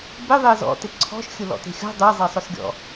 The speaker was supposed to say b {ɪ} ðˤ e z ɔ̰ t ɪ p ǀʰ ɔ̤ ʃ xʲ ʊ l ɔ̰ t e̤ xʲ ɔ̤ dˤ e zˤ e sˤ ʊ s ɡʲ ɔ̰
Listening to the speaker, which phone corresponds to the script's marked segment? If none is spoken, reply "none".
ɪ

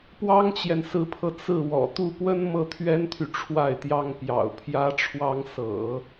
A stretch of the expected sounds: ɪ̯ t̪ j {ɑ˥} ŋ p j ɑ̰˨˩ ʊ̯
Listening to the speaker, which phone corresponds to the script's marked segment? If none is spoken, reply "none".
ɑ˥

